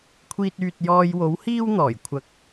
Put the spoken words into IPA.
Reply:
kʷʰ iː˧ t̚ yː˨ t̚ j ɔː˧ j w o˨˥ w h iː˥ w n̪ ɔː˨˩ j kʷʰ ɐ˧ k̚

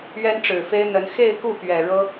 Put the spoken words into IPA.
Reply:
ɥ ɛ˥ n ʈ͡ʂ ɻ̩˨˩ f e˥ ɪ̯ n̪ ə˧˥ n x e˥˧ ɪ̯ k u˥˩ p ɥ ɛ˨˩ ɻ ɤ˥

